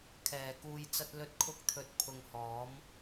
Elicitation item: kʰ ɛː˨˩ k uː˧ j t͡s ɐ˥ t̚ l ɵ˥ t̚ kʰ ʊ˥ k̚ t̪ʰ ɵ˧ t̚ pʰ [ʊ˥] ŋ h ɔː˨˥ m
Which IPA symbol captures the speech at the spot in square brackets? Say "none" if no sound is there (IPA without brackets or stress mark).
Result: ʊ˧